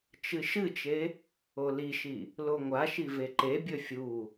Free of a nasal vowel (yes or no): yes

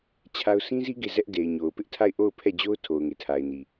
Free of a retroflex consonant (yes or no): yes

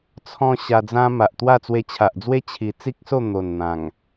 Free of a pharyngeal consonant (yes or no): yes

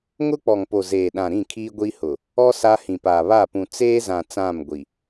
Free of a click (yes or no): yes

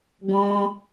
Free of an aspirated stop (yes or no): yes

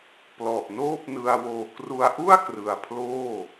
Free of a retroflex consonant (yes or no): yes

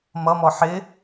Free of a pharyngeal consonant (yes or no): no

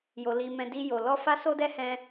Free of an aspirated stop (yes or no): yes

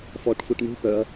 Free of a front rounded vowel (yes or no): no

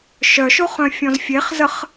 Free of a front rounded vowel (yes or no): no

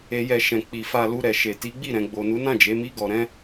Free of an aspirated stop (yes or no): yes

